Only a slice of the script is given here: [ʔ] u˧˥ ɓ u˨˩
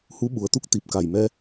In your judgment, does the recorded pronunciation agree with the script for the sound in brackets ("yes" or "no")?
no